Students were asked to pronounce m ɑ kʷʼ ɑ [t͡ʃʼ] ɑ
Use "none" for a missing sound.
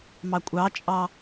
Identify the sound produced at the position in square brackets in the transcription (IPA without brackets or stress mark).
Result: t͡ʃʼ